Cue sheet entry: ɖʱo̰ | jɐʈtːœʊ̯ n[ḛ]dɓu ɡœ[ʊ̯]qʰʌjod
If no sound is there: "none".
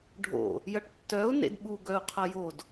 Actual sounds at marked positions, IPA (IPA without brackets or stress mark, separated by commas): ḛ, ʊ̯